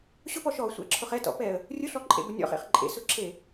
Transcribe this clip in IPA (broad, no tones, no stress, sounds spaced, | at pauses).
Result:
ɕ ʊ p ɔ ʃ ɔ sʷ ɛ̰ ǁʰ ʊ χ ɛ t ɔ̰ p ɛ ə̯ | rʲ ʊ ɬ ɔ ǃʼ ḛ b ʊ nʲ ɔ̰ χ ḛ χ ǃʼ ḛ s ʊ ǁʰ e